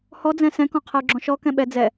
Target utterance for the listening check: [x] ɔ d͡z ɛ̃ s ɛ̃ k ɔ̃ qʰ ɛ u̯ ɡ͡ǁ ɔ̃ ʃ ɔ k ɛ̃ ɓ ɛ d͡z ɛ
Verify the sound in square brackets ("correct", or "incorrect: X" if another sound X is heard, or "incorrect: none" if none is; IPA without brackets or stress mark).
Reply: incorrect: h